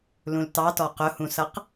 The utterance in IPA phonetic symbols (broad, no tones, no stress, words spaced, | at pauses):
lũltɑtɔ qʊhũsʌq